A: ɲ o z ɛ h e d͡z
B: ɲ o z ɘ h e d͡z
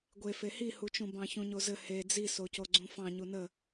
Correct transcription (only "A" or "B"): B